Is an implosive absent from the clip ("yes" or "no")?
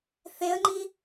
yes